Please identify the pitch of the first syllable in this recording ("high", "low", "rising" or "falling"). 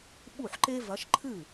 falling